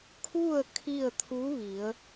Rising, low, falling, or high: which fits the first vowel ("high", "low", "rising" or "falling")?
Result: falling